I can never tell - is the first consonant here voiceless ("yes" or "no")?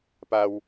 yes